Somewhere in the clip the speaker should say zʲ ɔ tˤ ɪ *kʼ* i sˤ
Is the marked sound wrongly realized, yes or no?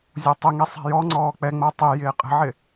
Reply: yes